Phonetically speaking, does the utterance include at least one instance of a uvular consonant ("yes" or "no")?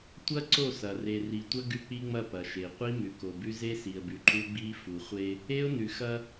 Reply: yes